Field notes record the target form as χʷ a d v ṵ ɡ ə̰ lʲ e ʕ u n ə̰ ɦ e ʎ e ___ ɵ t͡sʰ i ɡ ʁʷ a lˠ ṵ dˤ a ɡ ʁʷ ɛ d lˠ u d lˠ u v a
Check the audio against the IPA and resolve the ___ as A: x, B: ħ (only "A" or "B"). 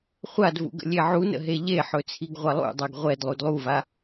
B